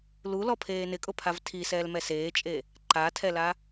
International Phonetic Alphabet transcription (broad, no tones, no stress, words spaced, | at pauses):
lulɔpʰeː nɪkʼʊpʰav tʰisɛːlmɛ seːt͡ʃʼe | ǃatʰɛla